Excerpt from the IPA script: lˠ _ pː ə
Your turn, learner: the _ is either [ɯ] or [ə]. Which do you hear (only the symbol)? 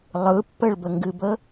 ɯ